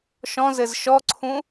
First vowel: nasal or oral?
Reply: nasal